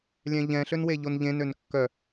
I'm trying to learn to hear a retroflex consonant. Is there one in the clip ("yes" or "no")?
no